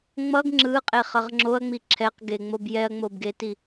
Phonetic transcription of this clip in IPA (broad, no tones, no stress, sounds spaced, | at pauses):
ŋ͡m ʌ ɡ ŋ͡ǁ ɯ qʼ e χ ʌ ʁ ŋ͡ǁ o ɐ̯ ŋ͡m i ǁʰ ɛ q ɡ e ŋ͡m o b j ɛ ɐ̯ ŋ͡m o b ɡ e t i